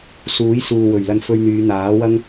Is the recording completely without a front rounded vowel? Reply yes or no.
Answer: no